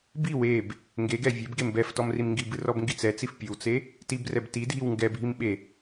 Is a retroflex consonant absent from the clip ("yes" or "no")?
yes